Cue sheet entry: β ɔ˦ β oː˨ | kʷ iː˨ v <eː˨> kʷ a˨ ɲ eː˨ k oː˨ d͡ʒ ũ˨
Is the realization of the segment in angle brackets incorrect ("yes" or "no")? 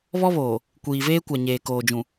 yes